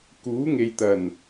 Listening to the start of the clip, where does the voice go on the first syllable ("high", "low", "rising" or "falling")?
rising